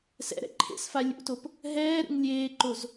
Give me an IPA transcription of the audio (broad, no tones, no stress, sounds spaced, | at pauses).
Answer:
s ɛ̰ ɾ ɛ̰ ǃʰ ḛ s f a lʲ ṵ t o p | ɦ ɛː ɾ ṵ ŋ lʲ eː ǃ o z